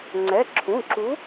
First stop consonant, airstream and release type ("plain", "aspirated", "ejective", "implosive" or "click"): click